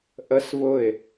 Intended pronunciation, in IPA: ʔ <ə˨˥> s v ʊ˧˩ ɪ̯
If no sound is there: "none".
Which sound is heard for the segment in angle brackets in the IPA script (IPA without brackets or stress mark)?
ə˨˥